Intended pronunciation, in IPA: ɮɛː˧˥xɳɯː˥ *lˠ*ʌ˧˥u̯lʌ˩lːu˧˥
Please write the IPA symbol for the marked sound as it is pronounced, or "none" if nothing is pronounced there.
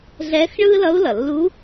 l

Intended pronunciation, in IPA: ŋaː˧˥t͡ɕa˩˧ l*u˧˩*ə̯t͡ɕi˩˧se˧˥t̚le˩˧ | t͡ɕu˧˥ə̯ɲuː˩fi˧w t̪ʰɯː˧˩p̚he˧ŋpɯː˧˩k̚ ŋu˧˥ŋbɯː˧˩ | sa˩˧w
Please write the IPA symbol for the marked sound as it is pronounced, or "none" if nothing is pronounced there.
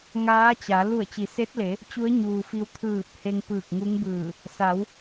u˧˩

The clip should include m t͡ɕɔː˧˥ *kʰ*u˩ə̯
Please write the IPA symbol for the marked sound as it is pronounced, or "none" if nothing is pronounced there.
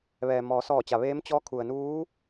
kʰ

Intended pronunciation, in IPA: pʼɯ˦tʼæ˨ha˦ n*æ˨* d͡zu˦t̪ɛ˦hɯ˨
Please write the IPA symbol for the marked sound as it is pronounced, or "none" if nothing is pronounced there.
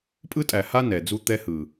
ɛ˨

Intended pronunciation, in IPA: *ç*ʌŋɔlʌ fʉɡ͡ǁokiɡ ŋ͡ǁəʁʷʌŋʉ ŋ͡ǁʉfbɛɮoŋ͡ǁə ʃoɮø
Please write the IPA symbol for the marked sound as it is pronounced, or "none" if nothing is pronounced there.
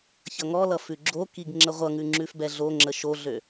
ç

